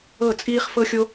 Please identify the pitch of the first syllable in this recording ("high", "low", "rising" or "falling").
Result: falling